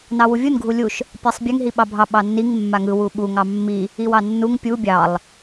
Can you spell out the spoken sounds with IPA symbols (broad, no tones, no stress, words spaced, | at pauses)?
nɑwuvʲun ɡʱulʲuʃ | pʲɑsˤbʲɛŋ ɦiɓɑbʱɑ ɓɑnːiŋ mːaŋɯ wuɓu ŋɑmːi | iwɑnːuŋ pʲu bʲɑlˠ